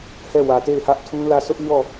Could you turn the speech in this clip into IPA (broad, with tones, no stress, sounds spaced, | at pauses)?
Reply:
h ɛ˦˨ w ä˨ t e˦˨ ɪ̯ h ä˦ ʔ tʰ ũ˦ l ä˦˨ s ʊ˦ ʔ ɲ ɔ˦˨